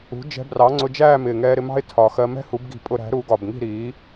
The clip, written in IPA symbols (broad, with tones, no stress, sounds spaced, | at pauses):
ṳ˩˥ d͡ʒ ɛ̤˧ b r ɑ˩˥ ŋ͡ǀ ʊ˧ d͡ʒ æː˥˨ m ɪː˨˩ ŋ ɛː˧ ɾ ɪ˧ m ɑ̤˥ ɪ̯ tʰ ɒ˨˩ x ɜ˧ m ɛ̤˥ h u˩˥ b ɡ i̤˨˩ pʼ ʊ˧ ɾ æ̤˩˥ ɾ u˩˥ ɡ ɒ˨˩ b ŋ i̤˥˨ ɾ iː˩˥